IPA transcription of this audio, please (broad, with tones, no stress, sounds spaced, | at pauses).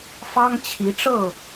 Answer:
f ɑ˥ ŋ t͡ɕʰ i˧˥ ʈ͡ʂ ɤ˥˩